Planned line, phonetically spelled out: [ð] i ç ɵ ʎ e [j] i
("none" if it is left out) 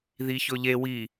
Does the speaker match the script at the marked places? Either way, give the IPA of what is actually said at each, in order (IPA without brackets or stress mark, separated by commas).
ð, w